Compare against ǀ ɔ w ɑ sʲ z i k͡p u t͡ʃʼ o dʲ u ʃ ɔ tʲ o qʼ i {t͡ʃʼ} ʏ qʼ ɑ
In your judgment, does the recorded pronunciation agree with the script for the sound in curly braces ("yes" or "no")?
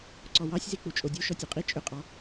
yes